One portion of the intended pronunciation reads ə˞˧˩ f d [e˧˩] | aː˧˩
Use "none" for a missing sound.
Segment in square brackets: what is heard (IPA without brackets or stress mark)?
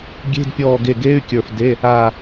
e˧˥˧